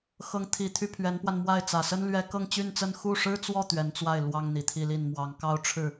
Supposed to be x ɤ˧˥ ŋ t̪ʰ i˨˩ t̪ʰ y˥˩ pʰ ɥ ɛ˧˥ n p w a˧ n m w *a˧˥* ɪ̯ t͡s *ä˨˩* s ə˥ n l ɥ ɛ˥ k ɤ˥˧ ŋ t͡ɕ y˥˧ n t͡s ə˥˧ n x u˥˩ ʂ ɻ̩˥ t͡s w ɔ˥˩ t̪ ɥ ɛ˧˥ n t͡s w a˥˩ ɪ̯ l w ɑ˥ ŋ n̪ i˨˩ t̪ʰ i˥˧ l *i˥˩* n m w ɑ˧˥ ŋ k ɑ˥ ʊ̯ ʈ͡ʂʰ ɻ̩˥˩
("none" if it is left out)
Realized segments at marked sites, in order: a˥˩, ä˨˩, i˥˩

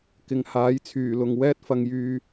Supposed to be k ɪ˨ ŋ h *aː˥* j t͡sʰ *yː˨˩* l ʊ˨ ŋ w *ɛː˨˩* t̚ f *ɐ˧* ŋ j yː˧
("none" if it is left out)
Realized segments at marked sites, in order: aː˨˥, yː˨˩, ɛː˥, ɐ˧

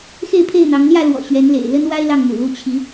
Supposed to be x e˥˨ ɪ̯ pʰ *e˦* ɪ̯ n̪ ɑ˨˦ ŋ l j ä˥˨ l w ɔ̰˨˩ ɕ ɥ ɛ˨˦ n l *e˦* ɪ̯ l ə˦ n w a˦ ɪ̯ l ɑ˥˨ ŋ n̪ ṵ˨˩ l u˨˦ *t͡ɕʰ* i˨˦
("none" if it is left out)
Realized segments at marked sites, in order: e˥˨, ḛ˨˩, t͡ɕʰ

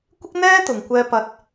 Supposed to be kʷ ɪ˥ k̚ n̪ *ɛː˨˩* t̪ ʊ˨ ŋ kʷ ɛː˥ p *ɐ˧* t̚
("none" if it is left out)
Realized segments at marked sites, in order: ɛː˥, ɐ˥

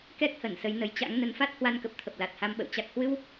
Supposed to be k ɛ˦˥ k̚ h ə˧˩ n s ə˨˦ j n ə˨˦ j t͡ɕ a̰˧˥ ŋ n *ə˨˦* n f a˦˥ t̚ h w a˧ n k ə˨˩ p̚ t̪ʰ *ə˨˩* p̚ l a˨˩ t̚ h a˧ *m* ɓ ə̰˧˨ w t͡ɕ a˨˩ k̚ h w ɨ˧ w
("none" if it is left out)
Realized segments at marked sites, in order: ə˨˦, ə˨˩, m

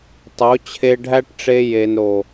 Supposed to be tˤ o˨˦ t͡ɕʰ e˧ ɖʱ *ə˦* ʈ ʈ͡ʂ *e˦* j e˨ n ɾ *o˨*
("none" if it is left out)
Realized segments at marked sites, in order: æ˦, e˧, o˨

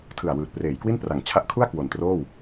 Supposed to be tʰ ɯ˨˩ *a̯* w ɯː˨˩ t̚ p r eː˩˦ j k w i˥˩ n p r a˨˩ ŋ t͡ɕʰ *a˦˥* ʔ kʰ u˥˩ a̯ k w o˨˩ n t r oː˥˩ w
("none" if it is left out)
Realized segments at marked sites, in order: a̯, a˦˥

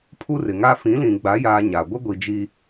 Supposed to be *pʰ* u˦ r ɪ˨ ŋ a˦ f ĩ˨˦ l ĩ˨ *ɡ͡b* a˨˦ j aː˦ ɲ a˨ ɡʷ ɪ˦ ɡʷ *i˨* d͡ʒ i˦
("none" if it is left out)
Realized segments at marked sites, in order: pʰ, ɡ͡b, i˨

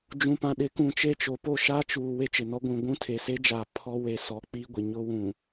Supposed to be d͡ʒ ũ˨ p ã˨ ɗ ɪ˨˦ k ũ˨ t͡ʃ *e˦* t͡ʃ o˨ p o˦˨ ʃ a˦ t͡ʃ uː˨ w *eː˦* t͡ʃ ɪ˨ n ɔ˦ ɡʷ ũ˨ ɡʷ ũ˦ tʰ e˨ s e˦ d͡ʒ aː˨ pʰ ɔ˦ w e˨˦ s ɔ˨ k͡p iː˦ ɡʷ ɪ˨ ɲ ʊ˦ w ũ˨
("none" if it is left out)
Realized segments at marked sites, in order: e˦, e˦

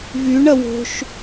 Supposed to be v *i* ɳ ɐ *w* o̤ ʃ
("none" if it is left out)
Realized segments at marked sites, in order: y, w

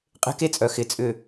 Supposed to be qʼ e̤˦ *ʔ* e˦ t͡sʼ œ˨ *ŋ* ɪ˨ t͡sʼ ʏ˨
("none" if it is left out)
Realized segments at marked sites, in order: k, x

